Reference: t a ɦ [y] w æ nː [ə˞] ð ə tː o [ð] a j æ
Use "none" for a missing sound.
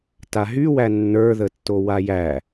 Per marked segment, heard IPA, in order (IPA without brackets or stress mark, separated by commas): y, ə˞, w